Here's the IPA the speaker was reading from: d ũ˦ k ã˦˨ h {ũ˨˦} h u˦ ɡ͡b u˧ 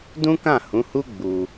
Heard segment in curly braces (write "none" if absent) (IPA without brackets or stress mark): ũ˨˦